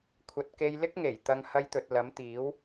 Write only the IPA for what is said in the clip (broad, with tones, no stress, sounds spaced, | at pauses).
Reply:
kʷʰ ɐ˨ t̚ k e˧ j l ɪ˥ k̚ ŋ e˨˩ j t̪ ɐ˧ ŋ h ɐ˧ j t̪ ɵ˨ t̚ l ɐ˨˥ m t̪ iː˨˥ w